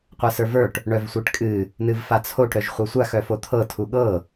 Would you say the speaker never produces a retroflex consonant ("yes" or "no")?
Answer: no